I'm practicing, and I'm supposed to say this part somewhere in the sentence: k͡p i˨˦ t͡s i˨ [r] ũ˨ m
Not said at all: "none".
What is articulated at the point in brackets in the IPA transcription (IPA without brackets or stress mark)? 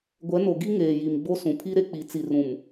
r